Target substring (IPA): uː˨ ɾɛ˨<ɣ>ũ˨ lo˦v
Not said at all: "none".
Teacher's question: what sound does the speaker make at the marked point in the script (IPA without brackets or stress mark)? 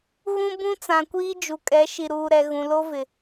ɣ